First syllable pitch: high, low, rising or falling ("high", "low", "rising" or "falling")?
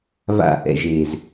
falling